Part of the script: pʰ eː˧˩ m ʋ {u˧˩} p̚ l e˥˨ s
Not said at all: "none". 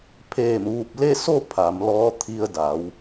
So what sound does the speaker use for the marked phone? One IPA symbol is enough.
u˧˩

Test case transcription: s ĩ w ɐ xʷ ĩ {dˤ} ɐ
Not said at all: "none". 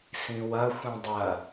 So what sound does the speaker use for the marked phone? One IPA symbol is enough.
dˤ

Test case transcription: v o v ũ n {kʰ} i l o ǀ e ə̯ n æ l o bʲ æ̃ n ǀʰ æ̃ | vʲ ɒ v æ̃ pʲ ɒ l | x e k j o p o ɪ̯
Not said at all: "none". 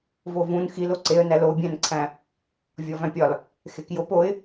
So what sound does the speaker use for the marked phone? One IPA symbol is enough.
x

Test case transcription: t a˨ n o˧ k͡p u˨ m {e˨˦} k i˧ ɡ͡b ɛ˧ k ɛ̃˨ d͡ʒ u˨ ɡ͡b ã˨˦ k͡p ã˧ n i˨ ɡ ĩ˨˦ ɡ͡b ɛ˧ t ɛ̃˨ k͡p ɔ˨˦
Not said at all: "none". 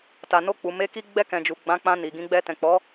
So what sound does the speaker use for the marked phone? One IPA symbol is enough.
e˨˦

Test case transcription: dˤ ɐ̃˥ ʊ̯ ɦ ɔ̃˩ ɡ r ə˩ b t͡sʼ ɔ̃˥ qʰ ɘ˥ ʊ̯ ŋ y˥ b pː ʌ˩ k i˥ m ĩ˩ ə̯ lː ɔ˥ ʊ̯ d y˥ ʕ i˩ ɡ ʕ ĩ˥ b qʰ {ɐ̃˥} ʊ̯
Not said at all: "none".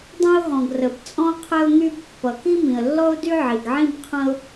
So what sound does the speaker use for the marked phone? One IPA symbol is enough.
ɐ̃˥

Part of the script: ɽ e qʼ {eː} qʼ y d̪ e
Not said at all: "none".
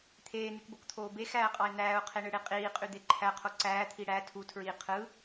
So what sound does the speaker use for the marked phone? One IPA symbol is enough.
iː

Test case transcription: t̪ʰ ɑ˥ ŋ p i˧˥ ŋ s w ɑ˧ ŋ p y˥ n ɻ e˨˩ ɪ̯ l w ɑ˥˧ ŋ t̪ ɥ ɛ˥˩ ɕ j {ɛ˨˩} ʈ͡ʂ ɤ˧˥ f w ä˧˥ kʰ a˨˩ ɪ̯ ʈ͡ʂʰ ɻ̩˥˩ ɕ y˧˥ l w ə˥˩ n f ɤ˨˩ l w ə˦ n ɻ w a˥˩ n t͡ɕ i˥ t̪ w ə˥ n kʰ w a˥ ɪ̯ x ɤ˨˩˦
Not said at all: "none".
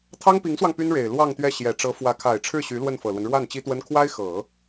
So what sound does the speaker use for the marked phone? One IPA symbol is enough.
ɛ˨˩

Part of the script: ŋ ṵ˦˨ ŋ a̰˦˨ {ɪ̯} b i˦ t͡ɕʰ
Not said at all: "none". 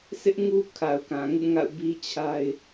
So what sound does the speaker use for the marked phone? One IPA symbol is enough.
ʊ̯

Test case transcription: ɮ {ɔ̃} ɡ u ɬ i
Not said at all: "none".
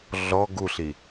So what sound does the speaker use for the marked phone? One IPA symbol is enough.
ɔ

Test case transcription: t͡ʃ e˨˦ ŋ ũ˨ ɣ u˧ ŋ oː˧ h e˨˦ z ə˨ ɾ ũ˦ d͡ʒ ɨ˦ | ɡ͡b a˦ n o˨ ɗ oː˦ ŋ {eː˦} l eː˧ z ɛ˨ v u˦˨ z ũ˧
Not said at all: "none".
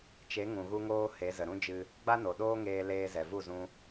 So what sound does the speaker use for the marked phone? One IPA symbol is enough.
eː˧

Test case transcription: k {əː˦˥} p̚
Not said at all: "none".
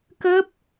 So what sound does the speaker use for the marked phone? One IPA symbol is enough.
əː˦˥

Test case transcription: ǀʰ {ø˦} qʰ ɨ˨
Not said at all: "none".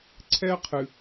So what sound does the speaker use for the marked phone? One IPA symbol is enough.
ɛ˦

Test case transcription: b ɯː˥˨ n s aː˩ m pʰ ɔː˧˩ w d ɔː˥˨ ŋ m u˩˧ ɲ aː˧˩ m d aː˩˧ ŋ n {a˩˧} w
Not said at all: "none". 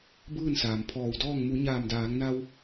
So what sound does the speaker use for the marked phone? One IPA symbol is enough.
a˧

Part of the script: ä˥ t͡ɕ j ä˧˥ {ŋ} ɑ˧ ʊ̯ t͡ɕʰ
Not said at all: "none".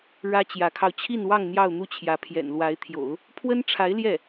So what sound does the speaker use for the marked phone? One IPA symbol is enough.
kʰ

